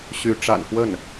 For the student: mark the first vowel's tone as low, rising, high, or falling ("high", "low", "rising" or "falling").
rising